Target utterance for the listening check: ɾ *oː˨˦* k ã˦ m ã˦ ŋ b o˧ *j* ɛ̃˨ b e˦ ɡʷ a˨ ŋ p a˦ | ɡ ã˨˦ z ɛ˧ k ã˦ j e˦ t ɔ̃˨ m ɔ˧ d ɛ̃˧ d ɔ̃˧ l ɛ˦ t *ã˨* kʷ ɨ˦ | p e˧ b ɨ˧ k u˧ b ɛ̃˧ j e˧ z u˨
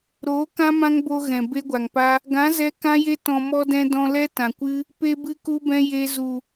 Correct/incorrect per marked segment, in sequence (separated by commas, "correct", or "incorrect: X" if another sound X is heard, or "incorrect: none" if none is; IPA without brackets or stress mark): correct, incorrect: ɣ, correct